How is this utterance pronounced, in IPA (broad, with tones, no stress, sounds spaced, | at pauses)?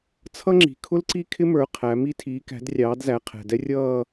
t͡sʰ ʌ˥ ŋ͡ǁ i̤˨ kʰ ʊ˥ l ǀ i˥˧ kʰ ɪ˥ m ə˞˨˦ qʰ æ˨˦ m i˥ tʰ iː˨˦ k æ̤˨˦ d rʲ ɑː˨˦ d z æ˨˦ qʰ ɛ̤˨ d ɛ˥ rʲ ʌː˥˧